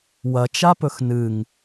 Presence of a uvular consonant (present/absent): absent